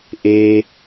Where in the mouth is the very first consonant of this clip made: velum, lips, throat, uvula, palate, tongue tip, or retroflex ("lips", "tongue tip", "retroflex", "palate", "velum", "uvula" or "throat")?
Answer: throat